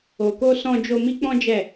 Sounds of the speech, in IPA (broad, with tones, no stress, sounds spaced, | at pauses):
o˨ k o˧ s ɔ̃˧ d͡ʒ o˧ m i˦ k͡p ɔ̃˦ d͡ʒ ɛ˦˨